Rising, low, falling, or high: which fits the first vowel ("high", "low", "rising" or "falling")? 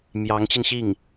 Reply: rising